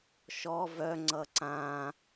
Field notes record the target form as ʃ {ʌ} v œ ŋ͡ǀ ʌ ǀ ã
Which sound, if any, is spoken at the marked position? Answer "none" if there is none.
ɔ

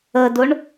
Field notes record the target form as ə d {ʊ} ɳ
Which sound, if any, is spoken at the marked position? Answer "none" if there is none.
ʊ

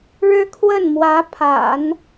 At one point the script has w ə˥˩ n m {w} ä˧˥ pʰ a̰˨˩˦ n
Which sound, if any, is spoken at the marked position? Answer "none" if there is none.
w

